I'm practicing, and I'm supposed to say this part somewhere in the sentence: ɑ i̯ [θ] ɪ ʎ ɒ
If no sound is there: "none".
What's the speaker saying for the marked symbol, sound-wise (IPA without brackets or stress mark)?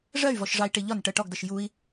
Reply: ʈ